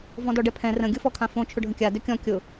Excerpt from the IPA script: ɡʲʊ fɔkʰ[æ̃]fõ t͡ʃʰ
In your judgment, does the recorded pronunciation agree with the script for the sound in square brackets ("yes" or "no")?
no